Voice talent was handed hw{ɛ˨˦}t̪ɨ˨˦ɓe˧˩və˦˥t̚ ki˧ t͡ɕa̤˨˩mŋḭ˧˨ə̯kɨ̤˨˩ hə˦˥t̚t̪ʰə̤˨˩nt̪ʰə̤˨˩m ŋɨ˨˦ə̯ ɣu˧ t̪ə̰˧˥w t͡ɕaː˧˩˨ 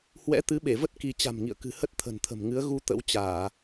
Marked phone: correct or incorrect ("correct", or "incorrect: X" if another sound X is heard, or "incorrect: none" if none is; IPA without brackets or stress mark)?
incorrect: ɛ̰˧˥